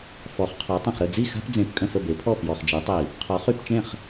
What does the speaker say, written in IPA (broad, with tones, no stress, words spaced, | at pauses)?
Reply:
fɔ˩˥χqʰɔ˩˥tˤə̃˨˩χ ɾə˥˩d͡zi˥˩xa̤˦pd͡zẽ˨˩p kʼə̃˥˩fə˥˩be˩˥pʰɔ˥˩ pjɔ˨˩χd͡ʒi˩˥tˤi˧˩˧ | qʰɔ˩˥χy˧˩˧pt͡ʃẽ˥˩χ